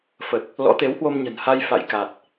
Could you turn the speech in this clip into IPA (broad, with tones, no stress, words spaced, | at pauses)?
fə˨˩t̚ | lɔ̰˧˥t̪e˨˦whwo˧m ɲə̤˨˩nha˧j fa̰˧˨j ka˨˩t̚